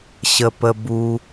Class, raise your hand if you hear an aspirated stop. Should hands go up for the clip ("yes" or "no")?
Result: no